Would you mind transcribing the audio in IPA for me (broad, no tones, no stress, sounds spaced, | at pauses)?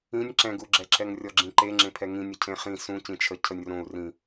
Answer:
ĩ nʲ ǁ ɛ̃ ɡ u ɡ͡ǁ ɛ ǁ ɛ ŋ rʲ ɔ ɡ͡ǁ ĩ ǃ e ŋ͡ǁ ẽ pʰ ɛ ŋ ĩ nʲ ə cʰ ẽ χ ĩ s ũ c ĩ t͡ʃʰ ə cʰ ə nʲ r õ u̯ r ĩ